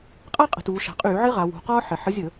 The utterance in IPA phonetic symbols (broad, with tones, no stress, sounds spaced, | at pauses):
qʼ a˥ qʼ ə̤˩˧ t uː˩˧ ʃ a̤˩˧ qʼ yː˧˩˧ ʕ ɪ˥ ʁ a˩˧ w ṳ˩˧ q ɒː˥ ħ ɪ˩˧ ħ ə˨˥ zʲ ə˧˩˧